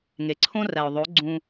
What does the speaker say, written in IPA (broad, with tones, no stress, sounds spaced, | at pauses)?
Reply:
ŋ e˨ ǀʰ õ˦ r æ˨ ʊ̯ ðˤ o˨˦ ɡ͡ǀ ũ˧